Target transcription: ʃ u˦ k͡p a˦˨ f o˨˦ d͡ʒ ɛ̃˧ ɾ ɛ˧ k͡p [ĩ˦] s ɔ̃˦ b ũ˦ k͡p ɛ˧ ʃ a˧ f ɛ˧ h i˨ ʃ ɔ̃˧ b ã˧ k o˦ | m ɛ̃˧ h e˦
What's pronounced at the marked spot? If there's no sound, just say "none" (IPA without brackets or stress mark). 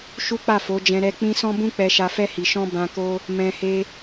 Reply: ĩ˦